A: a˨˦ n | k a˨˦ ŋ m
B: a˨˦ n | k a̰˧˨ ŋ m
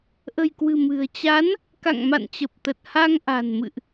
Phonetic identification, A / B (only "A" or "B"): B